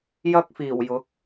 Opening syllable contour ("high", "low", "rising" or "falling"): high